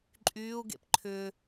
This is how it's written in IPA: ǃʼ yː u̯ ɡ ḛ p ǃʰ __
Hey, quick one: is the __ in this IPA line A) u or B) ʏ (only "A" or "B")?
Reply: B